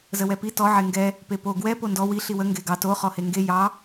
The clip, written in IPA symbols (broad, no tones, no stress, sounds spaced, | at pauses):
z ə w ɛ p i t ɔ ʕ e ŋ ɡ ɛ | p e p o ɡ w ɛ p o n d ɔ w i ɬ i w ə ŋ ɡ e ɡ ɑ t o χ ɔ h e ŋ ɡ e j ɑ